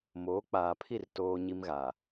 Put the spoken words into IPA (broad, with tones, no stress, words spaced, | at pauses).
moː˨˦k͡paː˨pʰi˦˨r toː˦ɲi˦mɣa˨